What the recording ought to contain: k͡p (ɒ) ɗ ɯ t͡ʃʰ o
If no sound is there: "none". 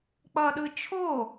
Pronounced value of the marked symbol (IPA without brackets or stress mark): ʌ